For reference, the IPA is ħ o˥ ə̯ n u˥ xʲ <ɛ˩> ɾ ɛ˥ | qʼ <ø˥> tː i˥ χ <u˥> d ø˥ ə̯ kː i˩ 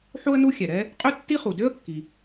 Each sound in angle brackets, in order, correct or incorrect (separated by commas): correct, correct, incorrect